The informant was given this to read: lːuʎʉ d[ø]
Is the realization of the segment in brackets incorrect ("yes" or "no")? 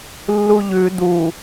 yes